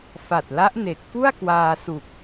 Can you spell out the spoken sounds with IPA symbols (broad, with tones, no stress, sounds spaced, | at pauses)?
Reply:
f a˨˩ t̚ l a˦˥ ʔ n e˨˩ k̚ f u˥˩ a̯ k w aː˧ s u˨˩ k̚